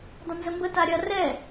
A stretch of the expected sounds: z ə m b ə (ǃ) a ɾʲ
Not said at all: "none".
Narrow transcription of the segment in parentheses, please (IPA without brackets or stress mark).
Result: t